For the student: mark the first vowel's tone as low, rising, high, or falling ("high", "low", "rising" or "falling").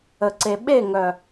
low